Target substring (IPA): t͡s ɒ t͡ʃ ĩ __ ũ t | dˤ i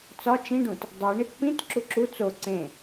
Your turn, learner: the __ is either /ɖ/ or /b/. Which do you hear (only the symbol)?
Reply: ɖ